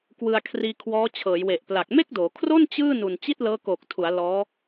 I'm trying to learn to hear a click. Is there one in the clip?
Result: no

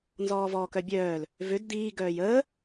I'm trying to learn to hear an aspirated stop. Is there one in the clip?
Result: no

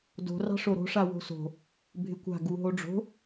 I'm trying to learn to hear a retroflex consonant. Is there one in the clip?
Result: yes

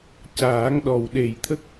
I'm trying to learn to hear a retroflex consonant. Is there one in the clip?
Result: no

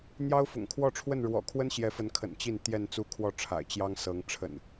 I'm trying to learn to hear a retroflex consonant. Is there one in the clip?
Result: yes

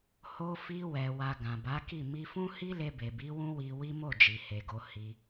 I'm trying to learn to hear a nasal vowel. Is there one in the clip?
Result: yes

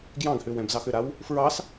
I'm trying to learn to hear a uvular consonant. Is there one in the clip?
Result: no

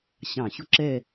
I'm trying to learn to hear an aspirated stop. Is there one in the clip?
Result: no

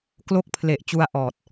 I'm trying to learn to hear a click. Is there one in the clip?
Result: no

